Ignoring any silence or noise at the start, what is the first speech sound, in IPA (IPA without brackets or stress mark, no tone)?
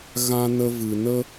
ɣ